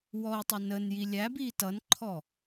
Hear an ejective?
no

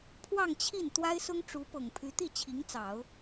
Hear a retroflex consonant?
yes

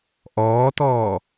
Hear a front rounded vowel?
no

